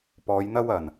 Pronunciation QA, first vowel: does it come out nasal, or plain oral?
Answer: oral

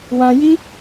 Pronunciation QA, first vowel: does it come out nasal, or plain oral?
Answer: nasal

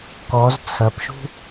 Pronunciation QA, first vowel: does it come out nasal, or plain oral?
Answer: oral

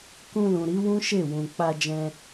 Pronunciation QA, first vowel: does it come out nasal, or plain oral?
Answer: nasal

